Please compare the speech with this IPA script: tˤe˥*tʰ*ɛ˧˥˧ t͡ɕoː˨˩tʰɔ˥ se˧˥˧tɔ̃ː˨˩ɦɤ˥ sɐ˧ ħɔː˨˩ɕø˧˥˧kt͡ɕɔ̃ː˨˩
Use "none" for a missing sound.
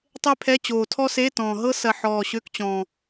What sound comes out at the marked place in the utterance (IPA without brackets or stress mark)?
pʰ